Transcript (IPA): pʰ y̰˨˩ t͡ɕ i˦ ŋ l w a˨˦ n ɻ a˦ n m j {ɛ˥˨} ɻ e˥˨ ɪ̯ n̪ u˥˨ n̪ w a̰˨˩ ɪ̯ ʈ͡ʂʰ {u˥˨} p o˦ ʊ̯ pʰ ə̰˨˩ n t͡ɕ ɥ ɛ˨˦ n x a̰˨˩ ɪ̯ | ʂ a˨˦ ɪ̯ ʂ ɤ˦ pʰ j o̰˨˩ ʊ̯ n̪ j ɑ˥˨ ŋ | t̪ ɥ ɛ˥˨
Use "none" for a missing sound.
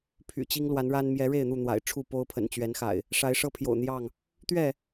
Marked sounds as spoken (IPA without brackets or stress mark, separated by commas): ɛ˨˦, u˥˨